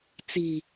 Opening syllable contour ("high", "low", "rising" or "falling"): low